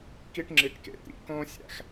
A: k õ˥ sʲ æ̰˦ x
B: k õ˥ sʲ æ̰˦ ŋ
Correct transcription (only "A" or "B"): A